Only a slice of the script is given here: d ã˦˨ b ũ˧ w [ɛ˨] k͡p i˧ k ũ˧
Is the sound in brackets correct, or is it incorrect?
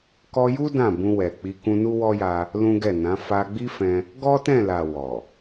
correct